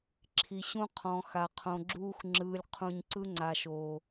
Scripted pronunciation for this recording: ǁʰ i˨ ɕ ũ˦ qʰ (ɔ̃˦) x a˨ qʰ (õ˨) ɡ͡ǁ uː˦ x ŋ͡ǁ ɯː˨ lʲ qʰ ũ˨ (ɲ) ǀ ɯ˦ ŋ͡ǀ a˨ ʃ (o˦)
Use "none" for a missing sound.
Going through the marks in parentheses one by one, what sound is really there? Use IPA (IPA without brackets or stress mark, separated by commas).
ɔ̃˨, õ˨, ɲ, o˨